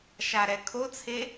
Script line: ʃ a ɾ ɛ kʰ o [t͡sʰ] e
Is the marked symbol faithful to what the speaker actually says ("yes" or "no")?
yes